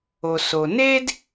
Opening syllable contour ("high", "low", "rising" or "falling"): low